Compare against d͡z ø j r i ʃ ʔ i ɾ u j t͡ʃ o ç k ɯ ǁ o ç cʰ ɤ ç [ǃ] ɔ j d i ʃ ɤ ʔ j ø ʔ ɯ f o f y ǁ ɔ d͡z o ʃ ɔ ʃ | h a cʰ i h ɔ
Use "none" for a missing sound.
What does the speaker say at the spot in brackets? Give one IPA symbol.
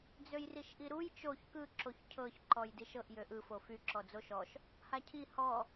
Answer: ǃ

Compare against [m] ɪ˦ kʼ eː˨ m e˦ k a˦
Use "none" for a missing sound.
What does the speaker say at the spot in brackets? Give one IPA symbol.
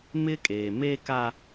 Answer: m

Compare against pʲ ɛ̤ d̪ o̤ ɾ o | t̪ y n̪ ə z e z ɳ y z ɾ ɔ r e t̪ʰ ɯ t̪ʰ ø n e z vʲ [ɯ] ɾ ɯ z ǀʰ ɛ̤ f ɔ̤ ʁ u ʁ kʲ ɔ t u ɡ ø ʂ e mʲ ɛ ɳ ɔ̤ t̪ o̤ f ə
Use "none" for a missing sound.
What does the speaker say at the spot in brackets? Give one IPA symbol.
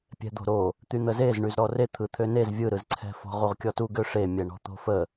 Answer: ɯ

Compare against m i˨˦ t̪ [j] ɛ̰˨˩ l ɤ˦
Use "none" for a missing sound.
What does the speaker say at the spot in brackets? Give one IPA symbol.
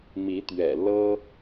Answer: ɥ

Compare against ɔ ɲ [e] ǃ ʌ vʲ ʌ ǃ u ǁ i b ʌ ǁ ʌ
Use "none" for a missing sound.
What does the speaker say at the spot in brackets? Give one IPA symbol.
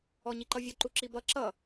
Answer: i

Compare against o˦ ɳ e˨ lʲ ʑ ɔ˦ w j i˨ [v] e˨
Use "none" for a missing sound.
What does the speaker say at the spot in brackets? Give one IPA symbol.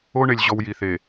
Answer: θ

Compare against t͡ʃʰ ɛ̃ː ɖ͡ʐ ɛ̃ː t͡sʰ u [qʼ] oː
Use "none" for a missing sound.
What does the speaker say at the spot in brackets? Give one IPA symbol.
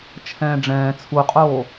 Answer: qʼ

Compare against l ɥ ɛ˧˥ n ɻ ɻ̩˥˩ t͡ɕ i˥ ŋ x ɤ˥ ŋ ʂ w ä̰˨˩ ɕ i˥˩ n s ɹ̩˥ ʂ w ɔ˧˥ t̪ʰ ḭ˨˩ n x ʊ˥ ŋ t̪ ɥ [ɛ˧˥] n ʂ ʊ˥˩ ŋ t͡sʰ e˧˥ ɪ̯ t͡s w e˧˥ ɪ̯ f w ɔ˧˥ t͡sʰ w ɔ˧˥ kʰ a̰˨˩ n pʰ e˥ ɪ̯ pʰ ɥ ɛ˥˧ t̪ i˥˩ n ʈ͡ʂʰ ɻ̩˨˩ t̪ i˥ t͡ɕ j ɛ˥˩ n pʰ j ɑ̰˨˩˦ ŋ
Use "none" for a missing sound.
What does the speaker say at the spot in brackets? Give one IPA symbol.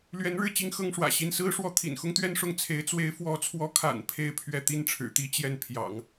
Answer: ɛ˥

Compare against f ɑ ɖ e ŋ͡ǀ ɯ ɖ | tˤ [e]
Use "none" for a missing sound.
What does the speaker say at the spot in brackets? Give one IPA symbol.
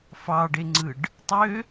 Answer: ø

